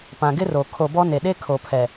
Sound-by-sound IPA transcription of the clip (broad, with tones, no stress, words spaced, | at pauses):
pã˨ɡɪ˦ro˨ kʰo˨bɔ˦ne˨ ɗe˦kʰo˨pʰɛ˨